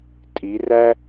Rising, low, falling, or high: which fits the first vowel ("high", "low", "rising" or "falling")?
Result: rising